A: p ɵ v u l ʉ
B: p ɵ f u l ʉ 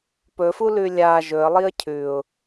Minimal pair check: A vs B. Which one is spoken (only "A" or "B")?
B